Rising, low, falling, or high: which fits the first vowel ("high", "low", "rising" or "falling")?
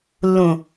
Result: low